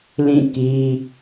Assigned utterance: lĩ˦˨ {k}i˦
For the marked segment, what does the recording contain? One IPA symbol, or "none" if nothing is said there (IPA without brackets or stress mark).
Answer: k